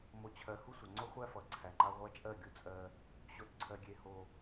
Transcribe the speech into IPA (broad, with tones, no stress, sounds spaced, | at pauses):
m o˨ t͡ɕʰ ɜ˨ h u˦ sʷ ʌ˨ ŋ͡ǀ o˦ χʷ æ˦ f ʌ˨˦ ǀʰ æ˨ ŋ͡ǃ a˦ ʁʷ a˦ t͡ʃʼ ɜ˦˨ ɡʲ u˦ t͡sʼ ɜ˦ | ɕ o˨ t ǀʰ ɜ˨ ɡʲ e˨ h o˦